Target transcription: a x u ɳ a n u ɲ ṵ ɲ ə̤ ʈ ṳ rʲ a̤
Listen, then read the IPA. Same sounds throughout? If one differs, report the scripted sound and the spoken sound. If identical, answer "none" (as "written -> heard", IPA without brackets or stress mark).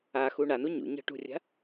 none